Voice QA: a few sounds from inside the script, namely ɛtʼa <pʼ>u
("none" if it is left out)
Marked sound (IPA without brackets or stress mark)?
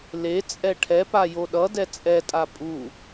pʼ